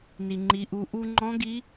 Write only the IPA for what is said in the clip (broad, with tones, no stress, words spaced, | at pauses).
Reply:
ni˩ŋ͡ǃi˩˧ʔu˩˧ ʔu˧ ŋ͡ǃɔ̃˧˥ɡi˧˥